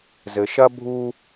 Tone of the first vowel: low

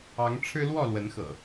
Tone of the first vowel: rising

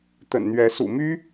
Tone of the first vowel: low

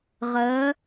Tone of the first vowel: rising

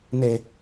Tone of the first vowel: low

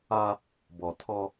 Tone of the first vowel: high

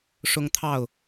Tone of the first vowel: high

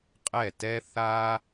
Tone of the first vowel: falling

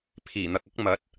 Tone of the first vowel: low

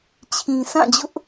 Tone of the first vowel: low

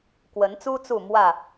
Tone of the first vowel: rising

